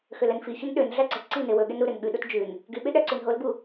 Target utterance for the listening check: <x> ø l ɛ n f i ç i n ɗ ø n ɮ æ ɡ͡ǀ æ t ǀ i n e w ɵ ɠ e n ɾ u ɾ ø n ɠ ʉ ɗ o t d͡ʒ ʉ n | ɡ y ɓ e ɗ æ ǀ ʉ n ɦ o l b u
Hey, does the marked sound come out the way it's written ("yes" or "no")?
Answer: yes